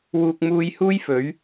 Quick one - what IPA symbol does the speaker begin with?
w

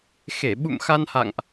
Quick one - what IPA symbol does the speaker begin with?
x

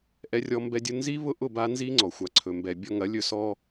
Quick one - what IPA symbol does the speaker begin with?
ʔ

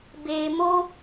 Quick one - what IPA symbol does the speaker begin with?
b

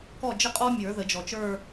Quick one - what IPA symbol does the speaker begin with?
k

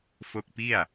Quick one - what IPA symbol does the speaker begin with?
f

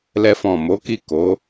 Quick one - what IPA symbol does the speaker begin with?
l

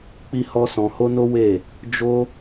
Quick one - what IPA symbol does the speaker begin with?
k͡p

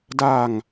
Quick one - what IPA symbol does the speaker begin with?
d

